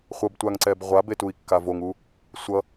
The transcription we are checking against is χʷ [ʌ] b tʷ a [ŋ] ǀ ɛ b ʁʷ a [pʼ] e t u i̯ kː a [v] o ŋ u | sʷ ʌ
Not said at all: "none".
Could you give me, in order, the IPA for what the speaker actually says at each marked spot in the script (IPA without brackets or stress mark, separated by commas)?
ʌ, ŋ, b, v